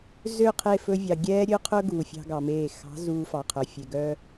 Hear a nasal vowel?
no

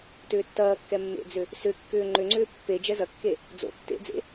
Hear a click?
yes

